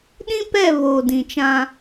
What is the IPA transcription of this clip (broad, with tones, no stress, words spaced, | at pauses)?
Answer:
ɗĩ˦pɛ˦˨ βoː˨dĩ˨t͡ʃã˦